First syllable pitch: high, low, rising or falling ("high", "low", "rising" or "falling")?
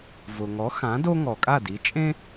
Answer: low